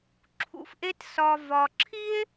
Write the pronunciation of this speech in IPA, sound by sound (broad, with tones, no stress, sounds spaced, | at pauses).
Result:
ǁʰ ṵ˧ f ʔ e˥ t s ɒ˧ v ɒ˧ ǁʰ i˥ e̯